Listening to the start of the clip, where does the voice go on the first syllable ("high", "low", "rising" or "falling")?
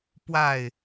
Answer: falling